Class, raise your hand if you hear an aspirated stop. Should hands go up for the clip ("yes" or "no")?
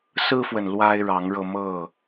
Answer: no